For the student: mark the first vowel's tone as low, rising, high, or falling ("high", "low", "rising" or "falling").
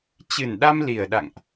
low